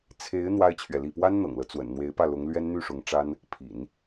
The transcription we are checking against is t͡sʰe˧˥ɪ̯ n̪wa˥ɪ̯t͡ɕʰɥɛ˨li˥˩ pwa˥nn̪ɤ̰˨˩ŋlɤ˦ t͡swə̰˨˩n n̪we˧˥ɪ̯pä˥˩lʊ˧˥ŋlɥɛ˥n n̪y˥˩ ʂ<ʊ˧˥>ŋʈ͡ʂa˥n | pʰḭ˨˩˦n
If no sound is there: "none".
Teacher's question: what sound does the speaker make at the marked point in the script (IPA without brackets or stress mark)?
ʊ˧˥